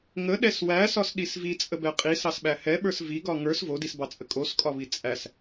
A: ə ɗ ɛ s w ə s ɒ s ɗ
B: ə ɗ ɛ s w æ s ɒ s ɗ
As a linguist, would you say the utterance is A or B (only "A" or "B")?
B